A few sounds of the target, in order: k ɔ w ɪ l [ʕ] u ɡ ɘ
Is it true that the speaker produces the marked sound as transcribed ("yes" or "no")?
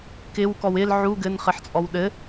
yes